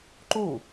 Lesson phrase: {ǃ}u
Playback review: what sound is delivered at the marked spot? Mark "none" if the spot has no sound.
ǃ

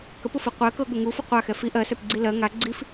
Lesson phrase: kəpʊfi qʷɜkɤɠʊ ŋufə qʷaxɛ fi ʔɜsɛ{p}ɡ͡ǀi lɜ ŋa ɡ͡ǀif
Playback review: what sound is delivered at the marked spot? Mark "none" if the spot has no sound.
p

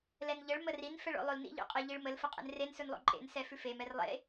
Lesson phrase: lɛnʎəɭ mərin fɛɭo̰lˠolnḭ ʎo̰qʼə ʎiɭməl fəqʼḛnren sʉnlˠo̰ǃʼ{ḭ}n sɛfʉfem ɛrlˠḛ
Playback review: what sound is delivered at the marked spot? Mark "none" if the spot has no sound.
ḛ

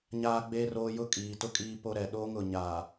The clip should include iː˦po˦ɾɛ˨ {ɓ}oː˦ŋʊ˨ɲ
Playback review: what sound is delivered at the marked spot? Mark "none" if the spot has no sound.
ɗ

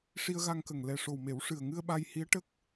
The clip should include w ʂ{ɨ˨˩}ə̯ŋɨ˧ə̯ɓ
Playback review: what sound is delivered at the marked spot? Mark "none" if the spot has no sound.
ɨ˨˩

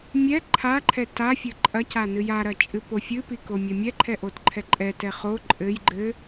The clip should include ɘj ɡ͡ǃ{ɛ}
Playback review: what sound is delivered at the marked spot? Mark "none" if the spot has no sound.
ɘ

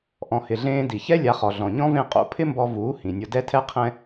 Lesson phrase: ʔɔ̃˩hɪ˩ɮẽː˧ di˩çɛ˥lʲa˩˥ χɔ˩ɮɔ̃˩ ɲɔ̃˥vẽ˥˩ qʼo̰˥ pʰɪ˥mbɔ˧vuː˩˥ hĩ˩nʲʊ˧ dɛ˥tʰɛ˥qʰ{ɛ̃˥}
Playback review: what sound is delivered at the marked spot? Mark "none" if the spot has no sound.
ɛ̃˥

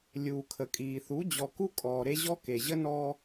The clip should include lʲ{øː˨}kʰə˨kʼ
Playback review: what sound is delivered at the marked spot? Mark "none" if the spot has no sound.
uː˨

